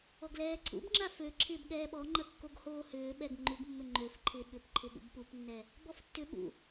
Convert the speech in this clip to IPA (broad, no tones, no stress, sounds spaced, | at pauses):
ɔ ɡ l ɛː ǀʰ ṵ b ŋ͡ǁ a f ø ǁʰ ɪː b ɠ ɛː ɓ ɔ ŋ͡ǃ ɐ kː o ɡ h oː h ʏː ɓ ɛ ɡ ŋ͡ǃ u ɡ mː ʏ ŋ͡ǃ ø f ǃʰ ɪː ɓ ʏ p ǃʰ ɪ ɠ ṵ b p u p nː ɛ | b ɔ f tː ʏ ɓ ṵ